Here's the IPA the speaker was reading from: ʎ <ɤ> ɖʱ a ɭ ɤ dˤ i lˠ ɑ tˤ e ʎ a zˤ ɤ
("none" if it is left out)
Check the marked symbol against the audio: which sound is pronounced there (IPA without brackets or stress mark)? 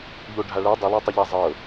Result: o